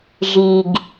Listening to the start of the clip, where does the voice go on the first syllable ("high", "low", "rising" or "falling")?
low